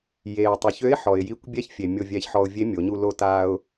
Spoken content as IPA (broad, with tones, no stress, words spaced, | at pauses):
je˩ʊ̯tˤø˩˧çø˧˥ɪ̯ ħɔ˩ɪ̯ji˧˥kʷ bʲɛ˥çfʲe˩mʲo˧ vʲɛ˧˥çħɔ˧ʊ̯ vʲe˧˥ mʲo˩˧ɲu˧ lo˧taː˧ʊ̯